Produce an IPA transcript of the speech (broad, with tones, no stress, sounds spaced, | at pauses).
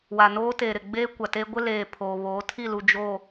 w a˨ n oː˦ t eː˨ ɾ ɪ˨ ɡ͡b eː˦ kʷ a˨ t eː˦ ɡʷ ɪ˦ l eː˨ pʰ oː˨ β oː˨˦ tʰ i˦˨ l u˨ d͡ʒ oː˨